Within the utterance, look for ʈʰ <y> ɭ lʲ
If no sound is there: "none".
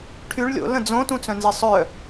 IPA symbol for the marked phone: y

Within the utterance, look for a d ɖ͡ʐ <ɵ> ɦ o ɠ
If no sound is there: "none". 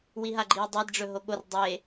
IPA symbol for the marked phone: ɵ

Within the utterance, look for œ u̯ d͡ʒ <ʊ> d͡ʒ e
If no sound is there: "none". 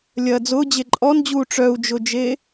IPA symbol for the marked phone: ʊ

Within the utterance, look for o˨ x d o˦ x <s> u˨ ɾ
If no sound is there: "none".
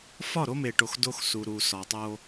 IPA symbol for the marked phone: s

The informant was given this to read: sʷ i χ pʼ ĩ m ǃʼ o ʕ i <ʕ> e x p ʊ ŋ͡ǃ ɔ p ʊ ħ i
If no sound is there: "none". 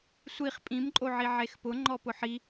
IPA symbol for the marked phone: ʕ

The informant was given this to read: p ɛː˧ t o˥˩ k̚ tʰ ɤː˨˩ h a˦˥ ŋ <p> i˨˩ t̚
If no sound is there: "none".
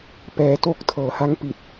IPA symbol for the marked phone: p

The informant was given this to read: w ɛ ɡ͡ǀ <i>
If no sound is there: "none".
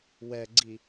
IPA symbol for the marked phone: i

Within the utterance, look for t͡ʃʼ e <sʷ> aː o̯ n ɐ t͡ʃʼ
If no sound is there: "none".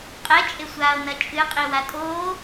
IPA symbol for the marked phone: sʷ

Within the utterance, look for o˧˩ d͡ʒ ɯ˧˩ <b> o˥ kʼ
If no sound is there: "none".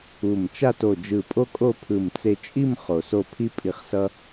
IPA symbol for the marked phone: pʼ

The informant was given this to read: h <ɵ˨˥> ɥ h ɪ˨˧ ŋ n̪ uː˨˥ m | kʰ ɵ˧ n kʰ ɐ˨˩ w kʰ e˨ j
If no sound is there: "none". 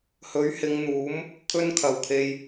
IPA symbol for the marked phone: ɵ˨˥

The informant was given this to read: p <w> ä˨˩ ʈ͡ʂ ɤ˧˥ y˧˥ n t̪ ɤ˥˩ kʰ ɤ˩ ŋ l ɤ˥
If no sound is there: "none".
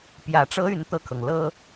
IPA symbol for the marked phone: j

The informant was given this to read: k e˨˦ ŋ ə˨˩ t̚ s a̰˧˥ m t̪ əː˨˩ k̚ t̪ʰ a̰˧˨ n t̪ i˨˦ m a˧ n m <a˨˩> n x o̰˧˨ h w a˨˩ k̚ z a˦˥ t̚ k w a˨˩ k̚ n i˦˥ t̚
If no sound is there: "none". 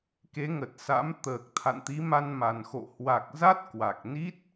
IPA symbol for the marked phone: a˨˩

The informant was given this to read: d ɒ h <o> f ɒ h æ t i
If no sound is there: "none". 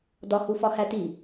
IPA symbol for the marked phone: u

